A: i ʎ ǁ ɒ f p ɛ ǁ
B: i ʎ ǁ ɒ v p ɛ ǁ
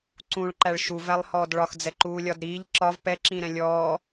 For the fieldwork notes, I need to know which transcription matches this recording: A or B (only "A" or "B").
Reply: B